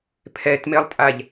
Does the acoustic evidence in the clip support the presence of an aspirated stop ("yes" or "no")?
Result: yes